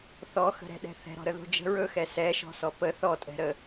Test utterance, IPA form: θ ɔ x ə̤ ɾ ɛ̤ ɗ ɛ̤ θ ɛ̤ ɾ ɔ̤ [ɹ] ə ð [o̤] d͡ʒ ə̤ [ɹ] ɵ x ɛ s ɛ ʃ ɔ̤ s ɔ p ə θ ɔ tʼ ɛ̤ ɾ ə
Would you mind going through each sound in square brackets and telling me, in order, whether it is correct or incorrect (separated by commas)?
incorrect, correct, correct